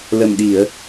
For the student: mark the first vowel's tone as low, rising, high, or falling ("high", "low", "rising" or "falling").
low